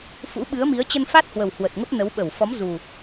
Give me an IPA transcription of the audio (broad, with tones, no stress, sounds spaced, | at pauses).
f ṵ˧˥ ɓ ɨ˨˦ ə̯ m i˨˦ ə̯ t͡ɕ ə˧ n f a˦˥ t̚ h w ə˨˩ w h w ə˨˩ t̚ ŋ ə˦˥ p̚ n ə˨˦ w ɓ ə˧˩ w f ɔ˨˦ m z u˨˩